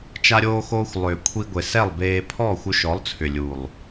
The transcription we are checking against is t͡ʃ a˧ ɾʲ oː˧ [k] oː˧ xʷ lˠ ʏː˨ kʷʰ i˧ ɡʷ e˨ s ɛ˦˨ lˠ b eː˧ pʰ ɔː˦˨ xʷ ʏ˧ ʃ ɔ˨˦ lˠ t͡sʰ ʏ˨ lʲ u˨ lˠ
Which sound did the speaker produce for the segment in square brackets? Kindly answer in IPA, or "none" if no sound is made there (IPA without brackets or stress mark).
x